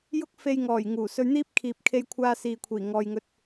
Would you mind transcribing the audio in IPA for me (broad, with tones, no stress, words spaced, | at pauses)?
jʊ˥k̚fe˧jŋɔː˨˩j ŋuː˨˩sɵ˧ɥn̪iː˥p̚ kʰiː˨p̚kʰe˧jkʷʰaː˧ siː˨kʷʰiː˨˩ŋɔː˨jŋɵ˧t̚